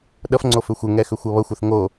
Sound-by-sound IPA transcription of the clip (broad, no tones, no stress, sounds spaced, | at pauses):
ɗ ʌ f ŋ͡ǀ o f ʏ xʷ ɘ ŋ ɛ x ʏ xʷ ʌ β ʌ xʷ ɘ θ ŋ o